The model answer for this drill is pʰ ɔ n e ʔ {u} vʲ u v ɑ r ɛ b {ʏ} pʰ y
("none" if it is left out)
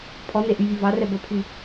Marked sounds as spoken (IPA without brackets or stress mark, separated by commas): y, ə